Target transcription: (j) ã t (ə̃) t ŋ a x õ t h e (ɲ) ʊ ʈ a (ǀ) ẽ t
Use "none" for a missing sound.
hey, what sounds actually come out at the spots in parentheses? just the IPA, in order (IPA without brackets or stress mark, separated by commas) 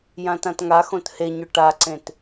j, ã, ɲ, ǀ